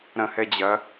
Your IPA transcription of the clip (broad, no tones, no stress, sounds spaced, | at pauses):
ɾ ɐ̃ h ɛ d͡ʑ ɐ